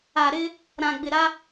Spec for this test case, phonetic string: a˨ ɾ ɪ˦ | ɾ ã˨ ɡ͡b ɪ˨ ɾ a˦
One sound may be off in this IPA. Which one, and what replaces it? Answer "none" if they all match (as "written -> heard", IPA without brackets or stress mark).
none